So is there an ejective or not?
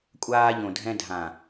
yes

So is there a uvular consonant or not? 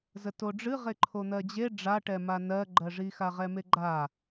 yes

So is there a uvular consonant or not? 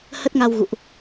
no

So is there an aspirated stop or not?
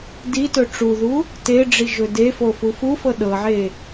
no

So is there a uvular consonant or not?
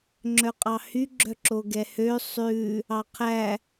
yes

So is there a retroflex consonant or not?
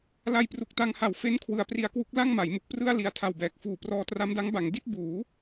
no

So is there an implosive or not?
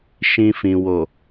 no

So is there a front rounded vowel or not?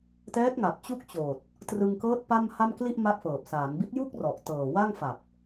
no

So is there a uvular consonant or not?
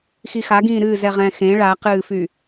yes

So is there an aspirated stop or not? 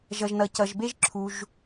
yes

